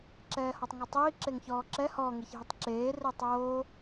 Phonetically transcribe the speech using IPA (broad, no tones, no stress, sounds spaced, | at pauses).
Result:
ǁ ɛː h ɔ tˤ ŋ ɤ tˤ iː ǁ e ŋ ç ɔː ǁ ɛ h ɔ ŋ e ç ɦ i tˤ ǁ eː r e tˤ oː